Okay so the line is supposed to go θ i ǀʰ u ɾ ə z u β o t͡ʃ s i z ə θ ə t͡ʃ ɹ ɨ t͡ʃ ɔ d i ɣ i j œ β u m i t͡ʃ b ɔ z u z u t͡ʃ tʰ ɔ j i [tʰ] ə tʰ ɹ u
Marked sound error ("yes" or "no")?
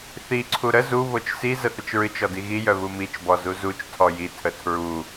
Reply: no